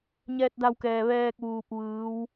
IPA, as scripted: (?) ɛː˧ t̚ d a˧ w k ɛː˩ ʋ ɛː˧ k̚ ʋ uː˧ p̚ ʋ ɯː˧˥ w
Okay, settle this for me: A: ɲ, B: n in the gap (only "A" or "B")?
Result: A